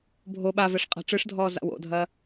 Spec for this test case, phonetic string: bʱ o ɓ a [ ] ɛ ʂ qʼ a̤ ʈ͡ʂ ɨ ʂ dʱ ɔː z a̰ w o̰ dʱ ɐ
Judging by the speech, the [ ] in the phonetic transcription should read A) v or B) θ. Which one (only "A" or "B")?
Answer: A